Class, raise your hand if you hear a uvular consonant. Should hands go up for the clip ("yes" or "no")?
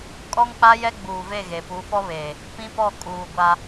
no